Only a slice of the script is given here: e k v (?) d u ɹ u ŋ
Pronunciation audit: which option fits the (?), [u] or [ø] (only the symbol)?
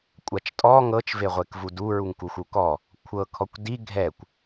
u